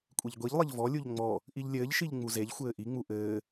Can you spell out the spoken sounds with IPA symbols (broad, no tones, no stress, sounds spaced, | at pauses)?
kʷʼ e ʎ ɡʷ i ʎ lˠ ɘ ʎ v ɔ lʲ u ʎ ŋ͡m ɔ | ʔ i ʎ lʲ ɘː ʎ ʃ i ʎ ŋ͡m u z e ʎ xʷ ɘː ʔ i ŋ͡m u ʔ ɘː